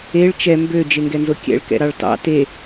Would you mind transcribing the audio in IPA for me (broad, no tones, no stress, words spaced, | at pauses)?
eɭ t͡ʃɛ mbø d͡ʒeŋɡɛnzokʲɛ̰ɭ kɛ̰ɾɑɭtɑ̰ te